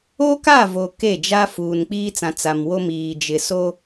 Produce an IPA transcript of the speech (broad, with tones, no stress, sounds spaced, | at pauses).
o˦ k a˦˨ v o˨ k e˦˨ d͡ʒ a˦ f uː˨ n k͡p iː˦ t͡s ã˨ t͡s a˨ m w o˦ m iː˨ d͡ʒ ɪ˨ s o˦